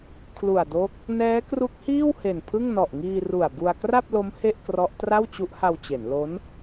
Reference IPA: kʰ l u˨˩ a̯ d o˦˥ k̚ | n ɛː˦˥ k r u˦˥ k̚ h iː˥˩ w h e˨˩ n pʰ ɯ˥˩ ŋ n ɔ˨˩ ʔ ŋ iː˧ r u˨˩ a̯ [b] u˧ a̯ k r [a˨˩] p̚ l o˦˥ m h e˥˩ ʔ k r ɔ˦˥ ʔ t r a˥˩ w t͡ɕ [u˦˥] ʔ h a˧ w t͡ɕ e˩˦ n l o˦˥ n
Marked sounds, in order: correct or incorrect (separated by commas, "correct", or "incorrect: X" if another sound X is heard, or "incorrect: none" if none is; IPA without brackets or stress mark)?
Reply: correct, incorrect: a˥˩, correct